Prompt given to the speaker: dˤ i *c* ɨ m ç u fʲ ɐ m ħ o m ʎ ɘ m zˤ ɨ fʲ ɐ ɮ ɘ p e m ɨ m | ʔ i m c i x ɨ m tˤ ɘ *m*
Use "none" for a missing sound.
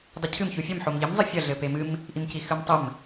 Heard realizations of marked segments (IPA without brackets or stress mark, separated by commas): cʰ, m